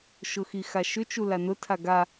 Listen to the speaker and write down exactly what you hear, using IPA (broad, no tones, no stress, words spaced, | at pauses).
ʃʊxixaʃʏ t͡ʃulanʊ tʰaɡa